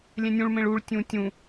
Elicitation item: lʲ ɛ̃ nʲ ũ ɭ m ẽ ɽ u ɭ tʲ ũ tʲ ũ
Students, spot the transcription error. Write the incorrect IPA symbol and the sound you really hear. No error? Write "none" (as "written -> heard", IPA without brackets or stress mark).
ɽ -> ɭ